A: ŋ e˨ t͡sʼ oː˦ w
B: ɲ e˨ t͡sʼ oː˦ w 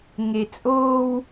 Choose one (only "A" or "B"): A